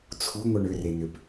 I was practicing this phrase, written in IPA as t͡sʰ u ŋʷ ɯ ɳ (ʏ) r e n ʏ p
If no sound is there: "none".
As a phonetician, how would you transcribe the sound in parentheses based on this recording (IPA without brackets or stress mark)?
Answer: ʏ